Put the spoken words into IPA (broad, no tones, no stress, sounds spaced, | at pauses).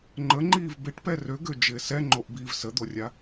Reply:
ŋ͡ǃ ə ŋ͡ǃ iː v b ɪ ʈ p ɛ r ø ɡ ø d͡ʒ ɪː s ɛ ŋ͡ǃ o ʔ b iː v s ə d̪ o rʲ a